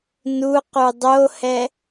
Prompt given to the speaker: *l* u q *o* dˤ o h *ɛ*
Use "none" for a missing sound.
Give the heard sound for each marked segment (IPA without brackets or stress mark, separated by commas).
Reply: n, u, ɛ